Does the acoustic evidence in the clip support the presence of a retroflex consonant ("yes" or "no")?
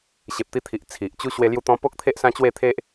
no